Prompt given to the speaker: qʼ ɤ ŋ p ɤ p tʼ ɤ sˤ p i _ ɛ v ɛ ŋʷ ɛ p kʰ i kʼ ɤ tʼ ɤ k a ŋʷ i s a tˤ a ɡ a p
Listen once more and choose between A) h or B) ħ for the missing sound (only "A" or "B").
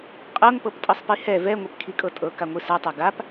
A